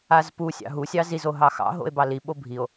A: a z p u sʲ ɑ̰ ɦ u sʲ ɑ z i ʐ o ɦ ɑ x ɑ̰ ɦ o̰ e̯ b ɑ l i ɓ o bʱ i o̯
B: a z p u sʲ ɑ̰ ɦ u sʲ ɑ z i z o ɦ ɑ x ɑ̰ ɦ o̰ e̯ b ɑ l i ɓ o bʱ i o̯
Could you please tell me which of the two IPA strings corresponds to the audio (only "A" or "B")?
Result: B